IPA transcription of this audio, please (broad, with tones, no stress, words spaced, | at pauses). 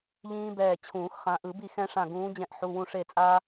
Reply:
ʎĩː˦bɛː˧˩ t͡ɕʰũː˨˩˦xχã˨˦ʔɯ˨˩˦bi˥˩ xɛ̃˦ʂã˧˩ɡũː˨˦ d͡ʑɛ̃˧˩ʔħu˩˧˩wũ˧˩ ʂe˧˩t͡sʼaː˦